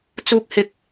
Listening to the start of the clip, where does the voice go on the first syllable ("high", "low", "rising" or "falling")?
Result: high